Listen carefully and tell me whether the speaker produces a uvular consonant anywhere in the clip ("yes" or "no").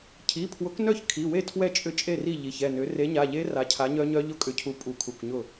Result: no